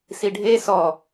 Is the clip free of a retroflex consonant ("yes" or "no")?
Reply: no